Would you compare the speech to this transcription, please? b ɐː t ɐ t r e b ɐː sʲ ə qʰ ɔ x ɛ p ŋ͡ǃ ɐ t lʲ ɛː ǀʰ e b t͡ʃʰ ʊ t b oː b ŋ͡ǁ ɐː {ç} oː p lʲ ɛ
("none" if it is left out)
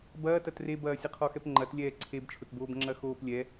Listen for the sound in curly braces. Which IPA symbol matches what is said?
x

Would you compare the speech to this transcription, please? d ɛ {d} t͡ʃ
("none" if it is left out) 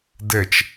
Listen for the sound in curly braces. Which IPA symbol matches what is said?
none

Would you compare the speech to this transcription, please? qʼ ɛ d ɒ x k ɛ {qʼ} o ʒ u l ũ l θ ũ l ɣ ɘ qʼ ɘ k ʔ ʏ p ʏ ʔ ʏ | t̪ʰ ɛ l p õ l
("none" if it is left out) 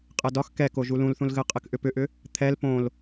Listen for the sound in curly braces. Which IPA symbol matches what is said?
k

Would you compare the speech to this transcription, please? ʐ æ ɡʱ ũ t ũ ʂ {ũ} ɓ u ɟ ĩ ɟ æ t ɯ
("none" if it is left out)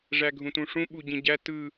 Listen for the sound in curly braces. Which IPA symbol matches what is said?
ũ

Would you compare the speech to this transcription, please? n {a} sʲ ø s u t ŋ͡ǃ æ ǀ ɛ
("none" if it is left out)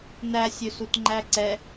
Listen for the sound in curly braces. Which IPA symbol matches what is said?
æ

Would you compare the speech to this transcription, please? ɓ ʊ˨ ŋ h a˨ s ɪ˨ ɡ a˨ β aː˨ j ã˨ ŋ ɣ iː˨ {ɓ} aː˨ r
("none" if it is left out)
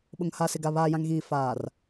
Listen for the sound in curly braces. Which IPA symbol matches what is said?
f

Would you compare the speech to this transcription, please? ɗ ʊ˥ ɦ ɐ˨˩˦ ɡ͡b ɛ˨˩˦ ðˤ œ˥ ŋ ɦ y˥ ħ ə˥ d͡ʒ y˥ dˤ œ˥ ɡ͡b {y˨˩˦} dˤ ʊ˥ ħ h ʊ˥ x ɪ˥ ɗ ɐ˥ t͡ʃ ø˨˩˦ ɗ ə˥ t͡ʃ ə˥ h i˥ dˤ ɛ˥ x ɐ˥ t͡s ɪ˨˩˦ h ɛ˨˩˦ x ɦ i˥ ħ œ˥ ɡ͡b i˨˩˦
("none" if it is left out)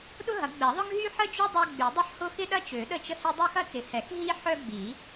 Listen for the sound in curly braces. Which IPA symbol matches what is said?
y˨˩˦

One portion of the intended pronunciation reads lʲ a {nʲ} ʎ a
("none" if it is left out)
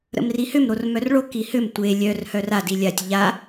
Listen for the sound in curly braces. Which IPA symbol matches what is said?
tʲ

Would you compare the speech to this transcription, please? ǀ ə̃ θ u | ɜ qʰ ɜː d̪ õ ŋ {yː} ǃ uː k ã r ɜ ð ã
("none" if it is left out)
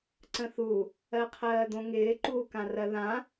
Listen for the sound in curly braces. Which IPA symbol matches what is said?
ɪː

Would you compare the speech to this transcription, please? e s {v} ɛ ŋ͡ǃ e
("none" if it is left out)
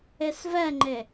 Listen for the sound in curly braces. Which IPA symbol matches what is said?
v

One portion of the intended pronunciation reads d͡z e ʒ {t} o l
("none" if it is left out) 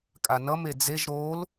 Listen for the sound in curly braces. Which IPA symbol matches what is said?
ɾ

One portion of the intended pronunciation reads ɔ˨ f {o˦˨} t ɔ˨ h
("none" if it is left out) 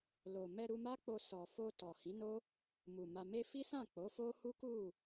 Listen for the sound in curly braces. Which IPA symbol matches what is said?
o˧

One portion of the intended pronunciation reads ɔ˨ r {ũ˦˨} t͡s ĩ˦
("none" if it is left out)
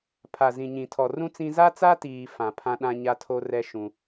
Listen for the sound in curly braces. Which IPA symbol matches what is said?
ũ˦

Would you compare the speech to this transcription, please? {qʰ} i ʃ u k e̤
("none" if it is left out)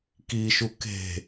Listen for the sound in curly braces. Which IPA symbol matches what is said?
k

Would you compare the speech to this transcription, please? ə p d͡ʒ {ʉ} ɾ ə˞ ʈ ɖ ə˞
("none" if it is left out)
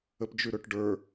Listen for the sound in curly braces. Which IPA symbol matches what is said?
ʉ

